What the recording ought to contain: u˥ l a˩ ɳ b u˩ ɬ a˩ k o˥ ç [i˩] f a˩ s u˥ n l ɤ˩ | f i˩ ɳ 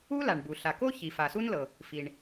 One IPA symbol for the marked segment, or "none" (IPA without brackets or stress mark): i˩